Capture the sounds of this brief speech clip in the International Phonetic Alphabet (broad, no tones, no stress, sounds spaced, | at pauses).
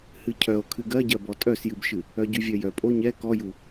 h ɨ cʰ œ o̯ kʰ ɨ ɡ ɜ ɟ ɜ b ɔ tʼ œ s j ɨ b ʃ ɨ | œ ɟ y vʲ œ j œ pʼ o ɲ ɛ k ɔ j u